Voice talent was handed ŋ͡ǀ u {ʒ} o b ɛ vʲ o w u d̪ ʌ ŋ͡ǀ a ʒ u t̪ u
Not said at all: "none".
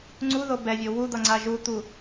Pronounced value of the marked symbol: ð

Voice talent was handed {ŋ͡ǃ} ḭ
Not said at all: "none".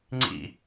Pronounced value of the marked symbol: ŋ͡ǀ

